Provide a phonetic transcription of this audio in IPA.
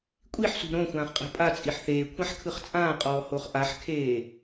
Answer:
kʷʼ i ħ s ṳ ɾ õ xʷ ãː χ qʼ ɛ̤ pʼ a t͡sʼ i ħ θ eː kʷʰ ã ħ kʰ ɯ χ t͡sʼ ãː qʼ ɔː h o χ ʔ a ħ kʰ eː

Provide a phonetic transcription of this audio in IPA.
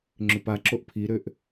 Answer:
ŋ͡ǁ ʏ p a ǁ o ʔ pʰ i ɾ ø ʔ

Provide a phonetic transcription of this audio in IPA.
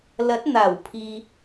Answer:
l ɐ˨˥ t̚ n̪ aː˨˩ w pʰ iː˨

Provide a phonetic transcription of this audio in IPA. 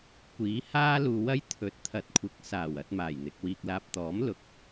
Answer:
kʷ iː˨˥ h aː˥ l uː˧ w ɐ˥ j t̪ʰ ɵ˨˥ t̚ t̪ʰ ɐ˨˥ t̚ kʷʰ ɪ˨˥ k̚ s aː˨˩ w ɐ˧ t̚ m aː˨˩ j n̪ ɪ˧ k̚ w iː˧ k̚ l aː˨ p̚ t̪ ɔː˨˥ m l ʊ˨ k̚

